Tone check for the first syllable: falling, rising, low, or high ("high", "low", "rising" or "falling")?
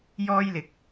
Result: high